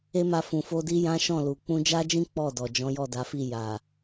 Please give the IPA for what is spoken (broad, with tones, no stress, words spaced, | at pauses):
e˦ma˧ fũ˨fo˧di˦ jã˦ʃɔ̃˦˨lu˨ k͡pũ˧d͡ʒa˦d͡ʒĩ˦ k͡pɔ˦˨dɔ˨ d͡ʒɔ̃˨˦jɔ˦˨da˨˦fi˦˨ ja˨